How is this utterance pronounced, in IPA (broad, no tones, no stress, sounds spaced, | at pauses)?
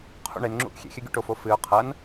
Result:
qʰ ṵ ɳ e n ŋ͡ǁ ṵ ʔ xʲ ḛ xʲ ɘ ɡʲ ṵ ʈ o f o f ɨ ʊ̯ qʰ ɐ n